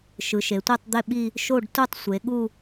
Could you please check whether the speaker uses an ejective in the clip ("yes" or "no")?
no